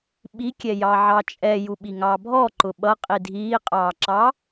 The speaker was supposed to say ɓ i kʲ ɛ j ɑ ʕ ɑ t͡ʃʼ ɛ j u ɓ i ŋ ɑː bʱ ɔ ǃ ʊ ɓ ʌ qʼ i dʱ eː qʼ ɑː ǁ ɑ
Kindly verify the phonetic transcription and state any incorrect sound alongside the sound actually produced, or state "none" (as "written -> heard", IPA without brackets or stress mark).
eː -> iː